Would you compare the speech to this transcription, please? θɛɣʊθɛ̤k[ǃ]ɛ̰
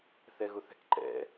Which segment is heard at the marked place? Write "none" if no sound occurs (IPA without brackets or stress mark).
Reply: ǃ